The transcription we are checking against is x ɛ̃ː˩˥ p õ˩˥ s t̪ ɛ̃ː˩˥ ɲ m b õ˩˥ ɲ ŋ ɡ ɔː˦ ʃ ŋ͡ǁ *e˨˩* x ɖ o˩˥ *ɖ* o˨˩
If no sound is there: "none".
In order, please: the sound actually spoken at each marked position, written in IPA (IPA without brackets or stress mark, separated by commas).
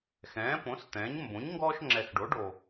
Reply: ɛ˨˩, ɖ